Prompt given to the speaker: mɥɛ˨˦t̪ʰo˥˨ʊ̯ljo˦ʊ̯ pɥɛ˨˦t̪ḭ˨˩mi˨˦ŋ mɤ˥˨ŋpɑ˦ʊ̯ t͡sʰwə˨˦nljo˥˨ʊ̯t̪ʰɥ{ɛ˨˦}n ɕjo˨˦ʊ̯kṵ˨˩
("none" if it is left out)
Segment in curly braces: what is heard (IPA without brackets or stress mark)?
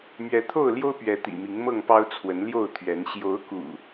ɛ˨˦